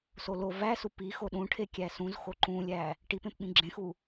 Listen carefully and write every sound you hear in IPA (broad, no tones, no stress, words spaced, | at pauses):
solo væ supixo ɗũʈʰe kʲæsũzxo ǃũlʲæ | ʈipẽp ɓĩɡ͡ǁẽxu